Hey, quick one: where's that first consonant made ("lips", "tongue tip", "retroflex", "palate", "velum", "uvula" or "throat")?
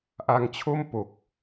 throat